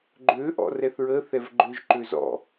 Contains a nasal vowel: no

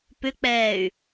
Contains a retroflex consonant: no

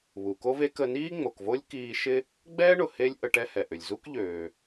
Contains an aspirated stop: no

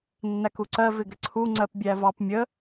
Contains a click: yes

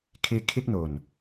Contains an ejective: no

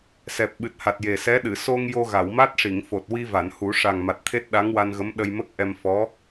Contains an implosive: yes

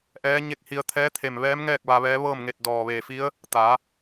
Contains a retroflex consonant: no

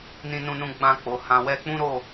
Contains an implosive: no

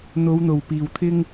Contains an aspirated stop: yes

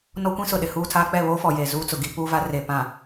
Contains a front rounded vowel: no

